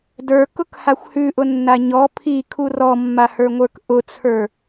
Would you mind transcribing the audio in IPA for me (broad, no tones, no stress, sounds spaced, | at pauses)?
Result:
d ə˞ k ʊ k h a xʷ h ʉ ʔ ʊ nː a ɲ ɔ pʰ i kʰ u r ɔ mː a h ə˞ ŋʷ ə˞ k ʔ ʊ t͡sʰ ə˞